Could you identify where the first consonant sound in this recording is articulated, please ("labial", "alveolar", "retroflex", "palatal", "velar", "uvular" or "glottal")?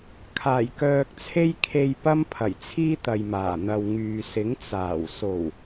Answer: velar